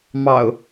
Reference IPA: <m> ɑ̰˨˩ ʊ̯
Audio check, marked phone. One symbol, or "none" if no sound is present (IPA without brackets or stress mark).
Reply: m